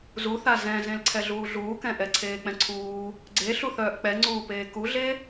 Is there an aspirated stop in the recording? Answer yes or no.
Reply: yes